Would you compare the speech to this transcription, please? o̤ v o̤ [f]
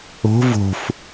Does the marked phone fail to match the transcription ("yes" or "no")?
no